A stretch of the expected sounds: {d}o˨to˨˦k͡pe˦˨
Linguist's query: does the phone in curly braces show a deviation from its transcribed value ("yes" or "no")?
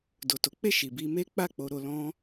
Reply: no